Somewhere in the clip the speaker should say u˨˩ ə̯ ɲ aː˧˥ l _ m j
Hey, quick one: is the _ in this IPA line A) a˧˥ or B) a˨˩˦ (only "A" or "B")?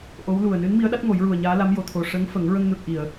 A